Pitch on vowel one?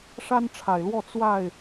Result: high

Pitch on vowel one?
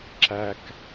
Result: high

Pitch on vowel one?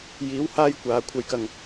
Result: rising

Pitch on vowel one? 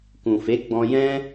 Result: low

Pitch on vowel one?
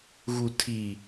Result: low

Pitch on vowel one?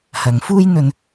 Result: low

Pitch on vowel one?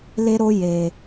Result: high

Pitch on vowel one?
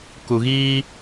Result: low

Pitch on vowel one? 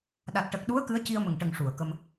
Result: low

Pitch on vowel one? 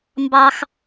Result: high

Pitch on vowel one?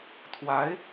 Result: rising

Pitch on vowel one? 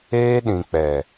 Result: high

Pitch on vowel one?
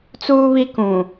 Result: high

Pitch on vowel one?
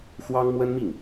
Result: high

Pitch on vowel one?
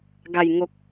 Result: low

